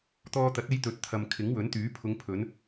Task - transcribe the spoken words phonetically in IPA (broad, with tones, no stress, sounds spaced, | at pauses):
t̪ ɔː˧ t̪ ɐ˨˥ t̚ e˧ j t̪ ɵ˨ t̚ t̪ʰ ɐ˨ m kʰ ɪ˨˥ ŋ w ɵ˨˥ n t̪ yː˨˥ pʰ ʊ˨˧ ŋ pʰ ɵ˨˧ n